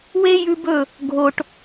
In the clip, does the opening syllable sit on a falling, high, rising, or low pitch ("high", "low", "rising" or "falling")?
high